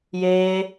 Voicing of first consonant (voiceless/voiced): voiced